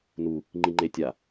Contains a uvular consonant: no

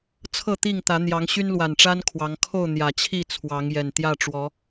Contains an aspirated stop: yes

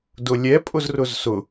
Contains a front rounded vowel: no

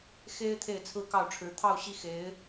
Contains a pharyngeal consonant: no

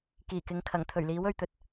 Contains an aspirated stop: yes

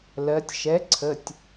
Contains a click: yes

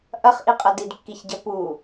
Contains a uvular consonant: yes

